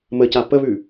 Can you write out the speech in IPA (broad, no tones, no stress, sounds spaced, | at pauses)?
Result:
m ə c a p ə β ʉ